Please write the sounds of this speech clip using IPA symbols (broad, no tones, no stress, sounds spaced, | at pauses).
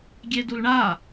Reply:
ɡʲ e d u l ɳ a